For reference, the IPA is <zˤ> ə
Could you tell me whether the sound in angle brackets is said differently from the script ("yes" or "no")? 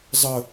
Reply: no